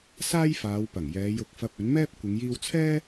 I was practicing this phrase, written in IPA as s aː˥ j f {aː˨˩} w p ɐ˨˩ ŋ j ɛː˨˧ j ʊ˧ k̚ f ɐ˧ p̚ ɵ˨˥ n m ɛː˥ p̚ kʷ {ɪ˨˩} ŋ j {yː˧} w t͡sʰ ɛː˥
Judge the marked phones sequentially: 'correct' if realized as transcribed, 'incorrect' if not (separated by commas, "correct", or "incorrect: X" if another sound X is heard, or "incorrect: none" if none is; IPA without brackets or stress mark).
incorrect: aː˨˧, incorrect: ɪ˨˧, incorrect: iː˧